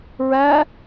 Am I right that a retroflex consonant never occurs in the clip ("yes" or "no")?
yes